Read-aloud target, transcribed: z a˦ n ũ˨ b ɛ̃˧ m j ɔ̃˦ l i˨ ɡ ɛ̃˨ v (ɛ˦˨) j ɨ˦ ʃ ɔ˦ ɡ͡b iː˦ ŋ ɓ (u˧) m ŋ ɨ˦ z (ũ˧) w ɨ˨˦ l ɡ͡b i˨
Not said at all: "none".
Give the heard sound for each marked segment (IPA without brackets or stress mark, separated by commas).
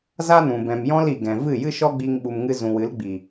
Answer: ɨ˦˨, u˧, ũ˨